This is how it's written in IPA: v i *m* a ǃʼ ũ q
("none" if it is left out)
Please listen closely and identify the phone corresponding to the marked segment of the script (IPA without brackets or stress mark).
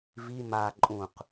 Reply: m